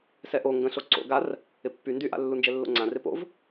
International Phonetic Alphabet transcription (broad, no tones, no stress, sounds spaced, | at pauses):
s ɛ ʔ o ŋ ɡ ə̃ ɬ o ǀ o̰ ɡ a r | ɪ pː y n d y ʔ a̰ lː u n d͡ʒ ɛ lː o̰ ŋ͡ǀ ã r ɪ p o̰ v